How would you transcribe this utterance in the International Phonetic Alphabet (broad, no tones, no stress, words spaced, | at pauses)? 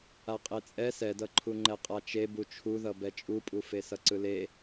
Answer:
aqʼet͡sʼɛ sɛdʌǃʰu ŋ͡ǃɛqʼat͡ʃe but͡ʃʰuðʌ bɛt͡ʃʼupʼufe sʌǀɯle